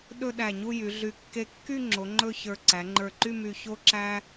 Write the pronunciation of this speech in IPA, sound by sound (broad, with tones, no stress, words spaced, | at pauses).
ɗɵ˥˧ɗæ˧˩ɲu˥˧ jy˩˧ɮy˧˩ kːe˧kːy˥˧ŋ͡ǁo˩˧ ŋ͡ǃɵ˥˧çə˞˧ ǀæ˩˧ŋ͡ǃə˞˧˩ǃy˥˧my˧˩ ço˥ǁæ˥